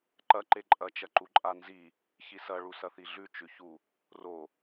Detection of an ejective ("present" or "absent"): present